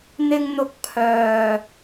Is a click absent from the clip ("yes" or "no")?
yes